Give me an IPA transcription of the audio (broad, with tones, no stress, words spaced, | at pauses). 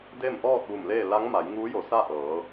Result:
de˥˨mʔɔː˥˨t̚ ʋu˧˩mleː˥˨ la˧˥ŋma˩˧jŋuː˧˥jo˩˧ sa˥˨ʔɤː˩˧